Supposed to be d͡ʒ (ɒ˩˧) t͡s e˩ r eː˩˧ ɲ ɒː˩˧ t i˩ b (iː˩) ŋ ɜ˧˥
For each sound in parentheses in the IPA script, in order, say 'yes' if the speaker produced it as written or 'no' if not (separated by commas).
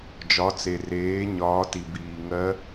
yes, yes